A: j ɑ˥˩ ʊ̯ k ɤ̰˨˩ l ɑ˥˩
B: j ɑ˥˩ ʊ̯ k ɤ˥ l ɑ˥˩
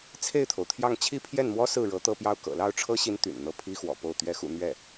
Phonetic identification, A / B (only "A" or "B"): A